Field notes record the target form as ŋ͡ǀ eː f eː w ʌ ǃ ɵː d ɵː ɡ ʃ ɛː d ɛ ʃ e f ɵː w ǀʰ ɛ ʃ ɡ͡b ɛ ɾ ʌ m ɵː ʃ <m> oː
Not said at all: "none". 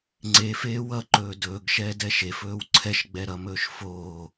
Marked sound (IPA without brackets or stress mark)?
f